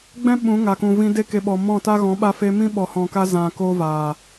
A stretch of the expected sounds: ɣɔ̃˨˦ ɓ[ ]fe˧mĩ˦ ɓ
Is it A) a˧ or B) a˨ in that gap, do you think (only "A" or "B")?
A